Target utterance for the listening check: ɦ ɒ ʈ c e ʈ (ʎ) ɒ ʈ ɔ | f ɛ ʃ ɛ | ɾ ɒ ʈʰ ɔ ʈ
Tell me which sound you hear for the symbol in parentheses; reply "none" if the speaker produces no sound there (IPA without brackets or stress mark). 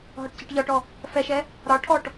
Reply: ʎ